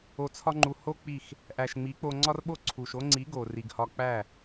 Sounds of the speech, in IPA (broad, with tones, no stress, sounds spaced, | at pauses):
o˨ t͡sʰ ɒ˧ ŋ͡ǃ u˨ h o˦ k͡p i˦˨ x | ʔ æ˨ ʃ ŋ͡m i˨˦ k͡p o˧ ŋ͡ǀ ɒ˦ r ɓ o˦ ǀʰ u˨ ʃ o˦ ŋ͡ǀ i˨˦ ɡ o˨ r i˨ ɡ h ɒ˧ k͡p æ˦˨